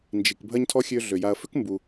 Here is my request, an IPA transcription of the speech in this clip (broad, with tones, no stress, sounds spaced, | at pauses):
n d͡ʒ i˩ k bʱ ɐ˥ ɲ tʰ ɔ˥ xʲ ø˦ ɮ ø˩ j a˨ ɐ̯ f ʏ˥ k m b u˨